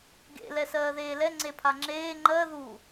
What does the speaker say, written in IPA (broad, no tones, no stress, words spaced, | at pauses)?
ɡḛ lɛsɜːðeːlɛ ŋ͡ǀepʰaŋ͡ǁeː ŋ͡ǃɜ ðu